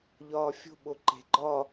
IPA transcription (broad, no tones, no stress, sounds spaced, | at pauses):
ʎ ɒː fʲ o̤ ɓ o ǃ e̤ ɡ͡ǃ ɒ